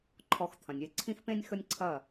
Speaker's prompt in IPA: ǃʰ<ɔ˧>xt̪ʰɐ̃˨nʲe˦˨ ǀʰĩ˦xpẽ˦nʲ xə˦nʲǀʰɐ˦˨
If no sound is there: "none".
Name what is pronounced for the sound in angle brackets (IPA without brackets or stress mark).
ɔ˧